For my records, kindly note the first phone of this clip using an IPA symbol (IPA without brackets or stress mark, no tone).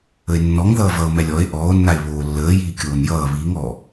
ə